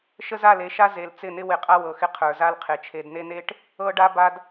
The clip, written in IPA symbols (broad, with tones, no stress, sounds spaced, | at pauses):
ʃ ə˦ z a˦˨ l e˦˨ ʃ a˦ z e˨ l t͡s ɪ˦˨ n ɪ˦ w ɪ˨ qʼ a˦ w ɤ˨ x ɪ˦ qʰ ə˞˨ z a˦ l qʰ e˨ t͡ʃʰ e˨ d n e˦ n e˦ ʈ | ɤ˦ ɖ a˦ b a˦ d